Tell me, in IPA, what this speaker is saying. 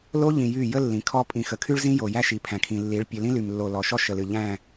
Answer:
l o˦ ʎ ĩ˨ j y˦˨ j ə˦ lː ĩ˨ kʰ ɔ˦ pʼ ĩ˨ x ə˨ kʰ y˦ ɭ z ĩ˦ j o˨ j æ˦ ʃ i˨ pʰ æ̃˨ kʰ ĩ˨ lː i˨˦ ɭ pʲ ɨ˨ l ĩ˦ l y˨ m lː o˨ l ɔ˨ ʃ ɔ˦ ʃ ə˨ l ɨ˨ ʎ æ̃˦˨

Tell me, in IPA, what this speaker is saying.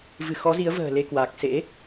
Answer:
v ɨ˧˩ x ɔ˨˦ z i˨˦ ə̯ v ə̤ː˨˩ l e˧ k w aː˨˩ k̚ s ḛ˧˥

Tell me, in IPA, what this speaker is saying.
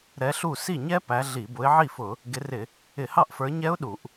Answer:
ɾ ɛ˨˦ ɬ u˥˩ s i˥˩ ɲ ɛ˦˥ p æ˨˦ ɮ i˧˩˧ b ʊ˨˦ ɪ̯ ʕ i˥˩ f ʊ˧˩˧ | ɡ ɪ˨˦ r ɪ˧˩˧ | ɪ˧˩˧ h ɑ˥˩ ʔ f ə˞˨˦ ɲ ɛ˦˥ ʊ̯ ɗ u˧˩˧ ʔ

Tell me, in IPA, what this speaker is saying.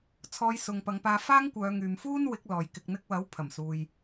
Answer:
t͡sʰ ɔː˧ j s ʊ˨ ŋ p ɐ˨˧ ŋ p aː˧ f aː˥ ŋ kʷ œː˨˧ ŋ yː˨ m f uː˥ n w ɪ˨˥ k̚ l ɔː˨ j k ɪ˨ k̚ n̪ ɪ˧ k̚ w ɐ˨˥ w pʰ ɐ˨˩ m s uː˨ j

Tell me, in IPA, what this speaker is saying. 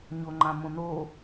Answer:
ɲ o ŋ͡ǃ ã m õ n o

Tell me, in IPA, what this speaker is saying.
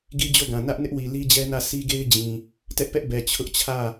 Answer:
ɡ i˦ d͡ʑ o˦˨ ɡ ã˨ n ä˦ ʔ n ɪ˦ ʔ w i˨ l i˦ d͡ʑ ɛ˦ n ä˦˨ s i˦ ɡ e˦ ɪ̯ d͡ʑ ĩ˨ | t ɛ˦ ʔ p ɛ˦ ʔ b ɛ˨ t͡ɕʰ ʊ˦ ʔ t͡ɕʰ ä˦˨

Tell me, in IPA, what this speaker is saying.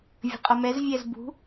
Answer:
vʲ ə̤ qʼ ʌ m ɛ z vʲ æ z b ṳ

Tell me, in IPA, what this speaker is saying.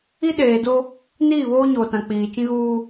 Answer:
i˦ ɗ eː˨ d o˦ | n iː˦˨ β oː˦ ɲ oː˨ t ã˨ k͡p iː˨ t͡ʃ ĩ˦ ɣ uː˦

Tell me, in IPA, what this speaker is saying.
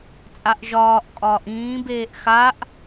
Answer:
t͡sʼ a ʔ ʒ ɒː ʔ kʼ ɒː ʔ ĩː b eː ʔ x a ʔ

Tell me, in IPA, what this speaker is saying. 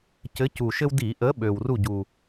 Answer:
c ɘ˨˥ c u˨˩ ʃ ɘ˦ w d i˧˩˧ ʔ ə˨˥ ɓ ø˨˩ w r u˥˩ ɟ u˨˩

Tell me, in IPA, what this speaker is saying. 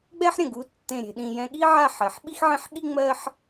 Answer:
ɡ͡b ɛ˥ ħ ɾʲ ə̃˩ ɡ u˧ tː ẽ˥˩ ɾʲ e̤˧ ɗ ĩ˧ j ɛ̃˧ ɠ i˥ ʕ a˥˩ ħ ɜ˩ ħ ɓ i˥ x ʕ ẽ˥ ħ ɠ i˥ ŋ͡m ɜ˥ ħ

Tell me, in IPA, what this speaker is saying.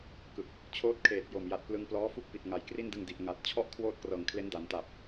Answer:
k ɯ˨˩ k̚ | t͡ɕʰ oː˦˥ t̚ kʰ eː˨˩ t̚ j o˨˩ m j a˨˩ t̚ p l ɯ˧ ŋ p l ɔː˦˥ f u˥˩ k̚ p i˨˩ t̚ ŋ a˩˦ j k r i˥˩ n d ɯ˧ ŋ d i˨˩ ʔ ŋ a˨˩ t̚ t͡ɕʰ ɔ˥˩ ʔ kʰ w oː˥˩ t̚ k r ɤː˨˩ ŋ kʰ l e˦˥ n d a˩˦ n t a˨˩ p̚

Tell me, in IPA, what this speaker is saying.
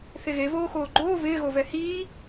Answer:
θ e ɣ e v oː x oː ɡ͡ǃ oː v ɪː ɣ o v ɛ h iː

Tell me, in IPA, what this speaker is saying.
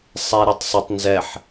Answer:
sˤ ɛ ɾ e tˤ sˤ e tˤ n z ɛ ħ

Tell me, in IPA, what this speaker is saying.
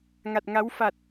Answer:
ŋ a˨˩ t̚ ŋ a˨˦ w f a˨˩ t̚

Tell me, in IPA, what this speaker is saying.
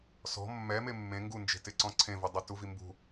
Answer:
s ɔ̤ mː ɛ m e mː ẽ ŋ ɡ u n d͡ʒ e̤ t ɪ ǀ ɔ̃ ǀʰ ẽ v ʊ dˤ ɪ t u v i m b ṳ

